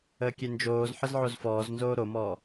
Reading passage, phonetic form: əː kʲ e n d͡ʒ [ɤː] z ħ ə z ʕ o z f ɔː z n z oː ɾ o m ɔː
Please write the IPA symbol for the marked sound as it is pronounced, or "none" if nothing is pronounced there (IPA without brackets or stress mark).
oː